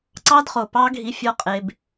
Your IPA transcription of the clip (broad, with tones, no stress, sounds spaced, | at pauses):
ǀ ɑ˦ d χ o˨ p ɑ˦ ɡʱ i˧ fʲ ɔ˦ qʼ e˧ b